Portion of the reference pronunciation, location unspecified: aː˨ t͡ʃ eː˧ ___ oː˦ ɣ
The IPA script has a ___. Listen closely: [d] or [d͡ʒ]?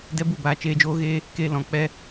d͡ʒ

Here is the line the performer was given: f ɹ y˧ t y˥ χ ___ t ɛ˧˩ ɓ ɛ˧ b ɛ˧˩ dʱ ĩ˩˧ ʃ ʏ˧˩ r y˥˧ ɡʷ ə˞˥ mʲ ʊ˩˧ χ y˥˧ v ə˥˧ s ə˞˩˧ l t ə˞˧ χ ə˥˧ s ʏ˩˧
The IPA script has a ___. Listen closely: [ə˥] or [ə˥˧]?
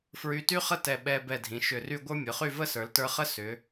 ə˥˧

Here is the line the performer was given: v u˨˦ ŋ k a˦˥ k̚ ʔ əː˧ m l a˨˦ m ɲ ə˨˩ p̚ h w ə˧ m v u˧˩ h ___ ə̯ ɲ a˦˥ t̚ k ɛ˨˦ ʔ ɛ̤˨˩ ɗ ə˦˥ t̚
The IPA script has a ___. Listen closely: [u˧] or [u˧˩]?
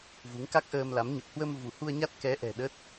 u˧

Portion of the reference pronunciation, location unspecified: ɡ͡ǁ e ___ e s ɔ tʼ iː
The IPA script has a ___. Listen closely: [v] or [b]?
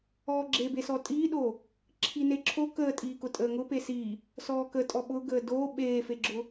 b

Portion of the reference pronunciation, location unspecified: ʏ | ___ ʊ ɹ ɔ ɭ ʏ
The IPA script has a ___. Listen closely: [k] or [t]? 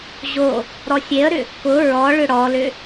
k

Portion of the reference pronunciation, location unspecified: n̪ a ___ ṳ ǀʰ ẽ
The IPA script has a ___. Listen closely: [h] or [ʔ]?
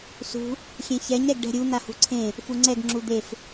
h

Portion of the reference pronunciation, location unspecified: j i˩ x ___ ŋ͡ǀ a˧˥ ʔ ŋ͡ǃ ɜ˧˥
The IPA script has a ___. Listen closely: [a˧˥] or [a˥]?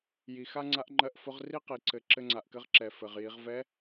a˥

